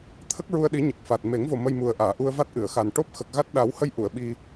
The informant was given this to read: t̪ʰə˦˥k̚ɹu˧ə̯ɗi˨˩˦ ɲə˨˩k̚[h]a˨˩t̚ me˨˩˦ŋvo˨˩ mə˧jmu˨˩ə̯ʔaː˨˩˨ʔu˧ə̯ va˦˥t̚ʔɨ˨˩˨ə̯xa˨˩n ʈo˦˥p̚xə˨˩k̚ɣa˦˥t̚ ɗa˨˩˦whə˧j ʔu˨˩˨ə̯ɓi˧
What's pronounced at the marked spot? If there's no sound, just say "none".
f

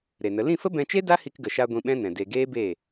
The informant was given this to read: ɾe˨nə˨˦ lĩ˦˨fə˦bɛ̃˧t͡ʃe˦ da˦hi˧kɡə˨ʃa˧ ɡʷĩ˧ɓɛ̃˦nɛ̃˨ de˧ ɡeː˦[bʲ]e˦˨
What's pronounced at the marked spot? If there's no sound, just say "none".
b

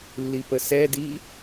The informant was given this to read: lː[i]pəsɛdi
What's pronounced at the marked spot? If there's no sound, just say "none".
i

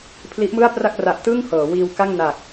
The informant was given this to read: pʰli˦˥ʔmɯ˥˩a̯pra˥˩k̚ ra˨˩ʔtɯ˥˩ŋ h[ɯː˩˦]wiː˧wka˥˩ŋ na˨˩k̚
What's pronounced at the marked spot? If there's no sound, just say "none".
ɤː˩˦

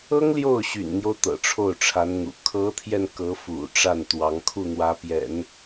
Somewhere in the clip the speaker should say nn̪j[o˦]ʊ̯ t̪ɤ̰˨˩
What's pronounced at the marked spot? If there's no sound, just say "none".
o˦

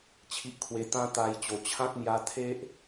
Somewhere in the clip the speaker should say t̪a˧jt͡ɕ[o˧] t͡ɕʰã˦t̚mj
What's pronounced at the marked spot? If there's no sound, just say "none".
o˨˩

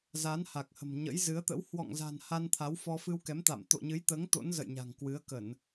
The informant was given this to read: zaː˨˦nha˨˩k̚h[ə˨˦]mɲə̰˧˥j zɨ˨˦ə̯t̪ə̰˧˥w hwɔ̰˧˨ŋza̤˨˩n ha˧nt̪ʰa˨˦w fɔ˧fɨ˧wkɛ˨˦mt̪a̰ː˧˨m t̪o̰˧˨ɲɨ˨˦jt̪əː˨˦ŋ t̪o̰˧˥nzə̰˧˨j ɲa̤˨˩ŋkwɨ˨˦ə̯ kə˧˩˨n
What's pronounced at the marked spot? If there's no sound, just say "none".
ə̤˨˩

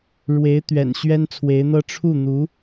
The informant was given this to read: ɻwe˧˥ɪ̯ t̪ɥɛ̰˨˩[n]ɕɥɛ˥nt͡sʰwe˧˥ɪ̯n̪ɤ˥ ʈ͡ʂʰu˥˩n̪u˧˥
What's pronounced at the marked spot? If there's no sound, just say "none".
n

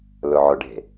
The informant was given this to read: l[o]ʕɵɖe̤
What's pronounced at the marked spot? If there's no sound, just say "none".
ɵ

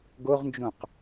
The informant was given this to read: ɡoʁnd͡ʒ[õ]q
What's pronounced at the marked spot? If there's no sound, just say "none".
õ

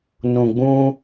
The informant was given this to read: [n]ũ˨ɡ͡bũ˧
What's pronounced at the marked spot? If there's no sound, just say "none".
n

